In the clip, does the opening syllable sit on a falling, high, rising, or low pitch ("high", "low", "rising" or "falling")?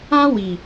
high